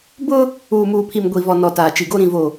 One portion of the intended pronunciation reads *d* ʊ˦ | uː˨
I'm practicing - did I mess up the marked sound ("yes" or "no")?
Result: yes